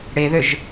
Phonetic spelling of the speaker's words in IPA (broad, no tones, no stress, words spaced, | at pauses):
ɽeðøʒ